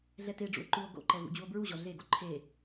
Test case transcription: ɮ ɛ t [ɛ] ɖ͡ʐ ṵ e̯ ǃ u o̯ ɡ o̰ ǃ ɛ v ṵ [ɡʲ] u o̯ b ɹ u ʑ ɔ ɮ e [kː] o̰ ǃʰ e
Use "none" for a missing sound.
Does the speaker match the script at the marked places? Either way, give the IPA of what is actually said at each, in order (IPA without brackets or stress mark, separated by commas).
e, d͡ʑ, ɡ